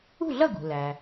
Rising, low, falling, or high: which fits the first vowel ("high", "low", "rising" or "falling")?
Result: falling